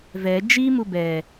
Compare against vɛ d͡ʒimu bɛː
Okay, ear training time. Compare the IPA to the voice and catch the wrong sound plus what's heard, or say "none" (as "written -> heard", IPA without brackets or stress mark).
none